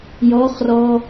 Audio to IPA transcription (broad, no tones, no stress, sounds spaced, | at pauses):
j ɔ χ r ɔ